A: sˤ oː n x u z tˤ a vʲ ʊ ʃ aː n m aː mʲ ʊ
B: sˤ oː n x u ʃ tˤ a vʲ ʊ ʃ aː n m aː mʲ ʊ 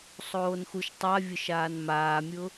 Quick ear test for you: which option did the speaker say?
B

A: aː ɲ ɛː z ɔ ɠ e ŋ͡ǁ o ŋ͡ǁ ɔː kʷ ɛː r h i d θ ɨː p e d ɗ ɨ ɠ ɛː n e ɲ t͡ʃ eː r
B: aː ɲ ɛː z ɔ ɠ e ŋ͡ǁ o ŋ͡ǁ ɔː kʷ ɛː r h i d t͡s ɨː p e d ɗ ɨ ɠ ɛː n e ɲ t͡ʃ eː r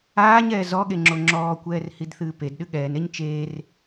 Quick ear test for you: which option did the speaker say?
A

